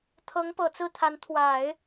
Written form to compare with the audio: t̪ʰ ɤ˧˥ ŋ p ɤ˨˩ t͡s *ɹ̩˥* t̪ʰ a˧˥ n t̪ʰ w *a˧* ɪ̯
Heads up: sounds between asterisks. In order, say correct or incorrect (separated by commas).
incorrect, incorrect